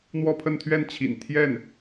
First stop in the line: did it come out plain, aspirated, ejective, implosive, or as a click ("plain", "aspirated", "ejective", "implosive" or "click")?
aspirated